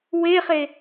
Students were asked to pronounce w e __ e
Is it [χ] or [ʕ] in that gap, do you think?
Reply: χ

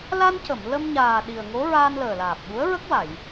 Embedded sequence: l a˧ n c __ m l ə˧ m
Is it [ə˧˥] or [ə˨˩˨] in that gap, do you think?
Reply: ə˨˩˨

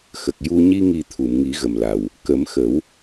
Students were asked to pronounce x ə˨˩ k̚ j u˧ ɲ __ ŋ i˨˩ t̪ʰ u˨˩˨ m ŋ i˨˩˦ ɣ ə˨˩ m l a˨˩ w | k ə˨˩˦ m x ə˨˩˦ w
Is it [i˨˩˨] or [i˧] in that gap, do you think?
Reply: i˧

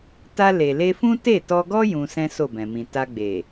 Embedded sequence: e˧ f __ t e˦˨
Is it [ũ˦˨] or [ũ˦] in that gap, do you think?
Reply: ũ˦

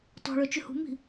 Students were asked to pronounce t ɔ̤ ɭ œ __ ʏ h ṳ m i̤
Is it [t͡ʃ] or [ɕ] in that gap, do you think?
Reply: t͡ʃ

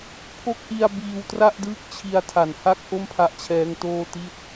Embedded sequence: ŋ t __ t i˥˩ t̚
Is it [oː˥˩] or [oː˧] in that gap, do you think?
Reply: oː˥˩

